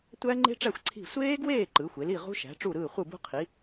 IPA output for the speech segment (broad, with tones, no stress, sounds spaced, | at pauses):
tʷ æ˦˥ ŋ͡ǃ e̤˦˥ ʈ͡ʂ æ˥˩ xʷ ǀʰ i̤˥˩ sʷ eː˦˥ ɡ w eː˥˩ ǃ ɯ˩˥ xʷ e˩˥ l i˥˩ ʁ ṳ˦˥ ʃ æ̤˩˥ ʈ͡ʂ u˥˩ ɾ ɯː˥˩ χʷ ɯ˥˩ b ṳ˦˥ qʰ i˩˥